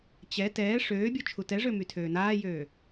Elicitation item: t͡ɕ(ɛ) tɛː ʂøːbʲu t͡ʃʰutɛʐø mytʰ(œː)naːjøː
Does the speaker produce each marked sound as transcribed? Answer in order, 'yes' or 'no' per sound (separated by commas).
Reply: yes, no